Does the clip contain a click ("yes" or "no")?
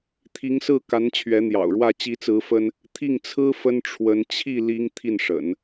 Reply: no